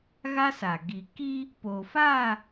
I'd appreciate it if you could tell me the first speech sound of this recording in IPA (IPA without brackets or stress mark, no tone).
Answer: ɣ